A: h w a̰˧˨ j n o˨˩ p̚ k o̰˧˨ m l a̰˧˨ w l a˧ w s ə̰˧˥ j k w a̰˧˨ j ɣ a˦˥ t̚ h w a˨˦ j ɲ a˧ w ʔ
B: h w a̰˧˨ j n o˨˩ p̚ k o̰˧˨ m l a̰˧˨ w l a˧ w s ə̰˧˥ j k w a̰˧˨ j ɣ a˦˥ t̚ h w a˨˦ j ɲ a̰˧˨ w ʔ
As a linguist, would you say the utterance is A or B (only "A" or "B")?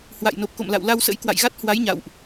B